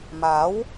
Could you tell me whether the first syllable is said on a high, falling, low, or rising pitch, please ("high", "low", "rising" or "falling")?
rising